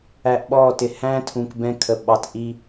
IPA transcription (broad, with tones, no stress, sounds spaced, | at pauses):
æ˧ ʔ ɓ ɔ˦˨ t ɪ˨ h æ̃˦ tʰ ũ˨ k b ɛ̃˧ kʰ ə˨ ɓ ɑ˧ t ʔ i˦